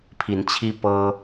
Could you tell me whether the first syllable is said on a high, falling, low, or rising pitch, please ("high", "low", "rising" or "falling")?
rising